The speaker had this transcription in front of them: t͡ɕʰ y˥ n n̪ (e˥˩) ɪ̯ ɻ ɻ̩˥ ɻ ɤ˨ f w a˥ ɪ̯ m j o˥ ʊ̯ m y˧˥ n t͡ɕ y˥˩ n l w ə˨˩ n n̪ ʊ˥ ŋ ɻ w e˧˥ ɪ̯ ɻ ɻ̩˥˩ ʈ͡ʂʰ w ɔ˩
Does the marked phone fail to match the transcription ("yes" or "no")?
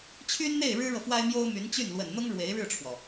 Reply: no